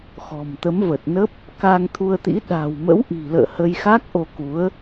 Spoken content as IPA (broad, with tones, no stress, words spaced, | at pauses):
xɔ̤˨˩mt̪ə˨˦mvə˨˩t̚nə˦˥p̚ | ka˧ŋt̪ʰu˧ə̯t̪ḭ˧˥ ɗa̤˨˩wmə̰˧˥w ʔi̤˨˩lə̰ː˧˨ hə˧jxa˦˥k̚ʔo˧ku˨˦ə̯